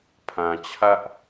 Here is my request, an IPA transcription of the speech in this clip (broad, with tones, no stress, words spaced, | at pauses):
pʰã˨ t͡ɕʰä˦ʔ